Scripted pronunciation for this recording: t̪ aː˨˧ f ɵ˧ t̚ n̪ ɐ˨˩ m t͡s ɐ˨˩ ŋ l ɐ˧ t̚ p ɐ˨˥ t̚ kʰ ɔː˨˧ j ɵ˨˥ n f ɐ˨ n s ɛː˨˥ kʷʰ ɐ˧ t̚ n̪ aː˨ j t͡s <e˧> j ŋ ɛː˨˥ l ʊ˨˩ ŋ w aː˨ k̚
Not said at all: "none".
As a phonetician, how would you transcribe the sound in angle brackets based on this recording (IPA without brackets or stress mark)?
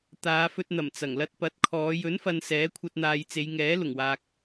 e˨˧